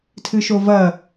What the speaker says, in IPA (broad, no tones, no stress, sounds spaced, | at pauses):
tʰ ɨ ʃ o v ɐ